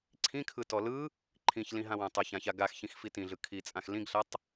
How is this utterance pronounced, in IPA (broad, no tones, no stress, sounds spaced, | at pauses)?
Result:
ǀʰ ĩ kʰ ɯ t ɔ l ɯ | ǃʰ ĩ ç l ĩ ɦ ã w ã tˤ a ç ã ç a ɡ a x ç ĩ x f i t ĩ ɮ ɯ kʰ i t͡sʼ ã x l ĩ ɡ ɬ a tˤ